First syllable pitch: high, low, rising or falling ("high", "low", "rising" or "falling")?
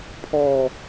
falling